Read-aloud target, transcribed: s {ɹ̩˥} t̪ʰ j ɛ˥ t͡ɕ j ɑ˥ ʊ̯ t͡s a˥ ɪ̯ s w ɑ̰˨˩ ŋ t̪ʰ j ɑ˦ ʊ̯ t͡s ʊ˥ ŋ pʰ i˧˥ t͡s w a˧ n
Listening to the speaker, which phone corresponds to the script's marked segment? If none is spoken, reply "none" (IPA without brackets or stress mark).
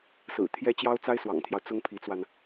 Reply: ɹ̩˨˩